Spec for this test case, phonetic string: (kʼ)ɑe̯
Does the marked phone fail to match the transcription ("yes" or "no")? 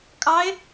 no